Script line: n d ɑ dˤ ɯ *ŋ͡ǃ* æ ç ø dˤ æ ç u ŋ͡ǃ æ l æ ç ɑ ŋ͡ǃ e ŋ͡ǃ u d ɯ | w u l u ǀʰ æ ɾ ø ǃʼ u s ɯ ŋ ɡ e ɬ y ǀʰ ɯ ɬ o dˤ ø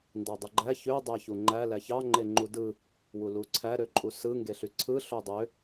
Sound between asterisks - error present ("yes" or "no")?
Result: yes